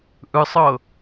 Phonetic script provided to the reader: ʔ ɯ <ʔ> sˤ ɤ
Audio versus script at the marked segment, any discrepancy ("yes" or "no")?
yes